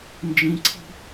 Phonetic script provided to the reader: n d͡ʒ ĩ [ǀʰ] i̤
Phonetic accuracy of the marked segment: correct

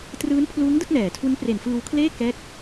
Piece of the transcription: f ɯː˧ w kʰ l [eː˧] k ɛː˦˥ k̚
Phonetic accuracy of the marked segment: incorrect: eː˥˩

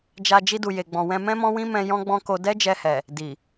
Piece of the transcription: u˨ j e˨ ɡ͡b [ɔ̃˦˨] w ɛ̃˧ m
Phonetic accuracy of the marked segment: incorrect: ɔ̃˨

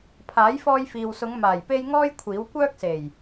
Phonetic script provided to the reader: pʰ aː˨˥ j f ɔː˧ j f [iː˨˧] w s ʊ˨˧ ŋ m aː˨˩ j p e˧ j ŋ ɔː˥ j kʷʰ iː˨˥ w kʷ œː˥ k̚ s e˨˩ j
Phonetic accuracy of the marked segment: incorrect: iː˨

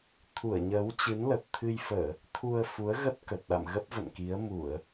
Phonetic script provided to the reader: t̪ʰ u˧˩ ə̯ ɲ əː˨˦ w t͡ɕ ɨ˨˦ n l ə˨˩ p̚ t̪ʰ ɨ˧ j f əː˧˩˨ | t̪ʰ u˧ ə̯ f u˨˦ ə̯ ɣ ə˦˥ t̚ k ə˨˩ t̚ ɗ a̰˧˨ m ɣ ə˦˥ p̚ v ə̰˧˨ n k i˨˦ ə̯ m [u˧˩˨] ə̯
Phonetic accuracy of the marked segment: correct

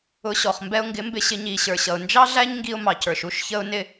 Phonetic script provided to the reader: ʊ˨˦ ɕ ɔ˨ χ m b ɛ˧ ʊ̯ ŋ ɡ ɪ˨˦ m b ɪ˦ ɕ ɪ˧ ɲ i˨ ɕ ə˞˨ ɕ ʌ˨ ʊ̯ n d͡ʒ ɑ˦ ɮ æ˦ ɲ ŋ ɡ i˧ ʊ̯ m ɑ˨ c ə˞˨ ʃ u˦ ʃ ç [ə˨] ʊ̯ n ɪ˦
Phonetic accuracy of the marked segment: incorrect: ə˦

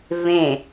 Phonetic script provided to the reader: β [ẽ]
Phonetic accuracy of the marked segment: correct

